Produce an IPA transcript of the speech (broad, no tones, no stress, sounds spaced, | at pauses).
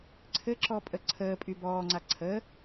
ǀʰ ɘ ǁ ɔ pʼ ə ǀʰ əː pʼ y b ɔː ŋ͡ǀ a ǀʰ ə